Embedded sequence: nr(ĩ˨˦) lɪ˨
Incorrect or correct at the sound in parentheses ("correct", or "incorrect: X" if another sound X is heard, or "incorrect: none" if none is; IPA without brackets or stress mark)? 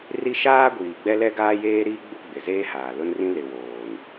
incorrect: ĩ˦